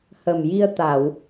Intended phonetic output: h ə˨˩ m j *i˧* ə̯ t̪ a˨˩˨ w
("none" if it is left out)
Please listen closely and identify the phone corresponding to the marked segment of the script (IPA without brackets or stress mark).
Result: i˧